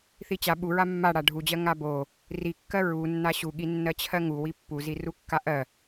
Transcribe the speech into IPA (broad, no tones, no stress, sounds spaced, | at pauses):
θ i t͡ɕ a ɓ u ɹ a mː a ɽ a ɖʱ u d͡ʑ ɜ ŋ a b o | r i kː ɜ ɹ u nː a ɕ u ɠ i nː ɜ t͡ɕʰ ɜ ŋ u w i pː u z i r u kː a ʔ ɜ